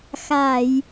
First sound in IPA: x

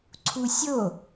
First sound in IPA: ǀʰ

